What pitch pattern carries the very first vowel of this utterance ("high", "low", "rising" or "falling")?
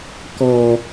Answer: low